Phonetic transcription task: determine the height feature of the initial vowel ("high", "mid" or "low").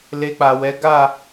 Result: mid